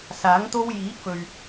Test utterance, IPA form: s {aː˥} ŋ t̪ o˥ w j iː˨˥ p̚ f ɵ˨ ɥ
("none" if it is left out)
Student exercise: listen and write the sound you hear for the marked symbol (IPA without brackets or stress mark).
aː˨˥